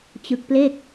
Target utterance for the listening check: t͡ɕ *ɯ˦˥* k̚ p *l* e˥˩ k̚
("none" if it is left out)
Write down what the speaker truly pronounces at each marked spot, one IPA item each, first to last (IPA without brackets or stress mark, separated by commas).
ɯ˦˥, l